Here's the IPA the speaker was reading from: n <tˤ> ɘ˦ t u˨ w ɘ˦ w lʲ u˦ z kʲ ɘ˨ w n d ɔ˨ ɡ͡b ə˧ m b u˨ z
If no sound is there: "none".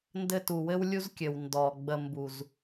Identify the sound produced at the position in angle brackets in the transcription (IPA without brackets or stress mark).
d